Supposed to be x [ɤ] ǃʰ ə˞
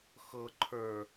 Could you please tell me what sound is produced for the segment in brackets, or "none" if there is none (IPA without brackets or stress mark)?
ɤ